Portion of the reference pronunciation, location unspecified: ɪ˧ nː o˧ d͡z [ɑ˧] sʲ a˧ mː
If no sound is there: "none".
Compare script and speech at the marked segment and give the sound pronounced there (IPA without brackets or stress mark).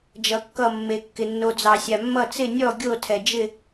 ɑ˧